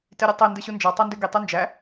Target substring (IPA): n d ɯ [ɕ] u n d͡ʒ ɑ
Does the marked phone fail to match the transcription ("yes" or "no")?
no